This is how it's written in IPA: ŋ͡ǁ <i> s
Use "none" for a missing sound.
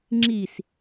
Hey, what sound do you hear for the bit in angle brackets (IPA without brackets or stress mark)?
i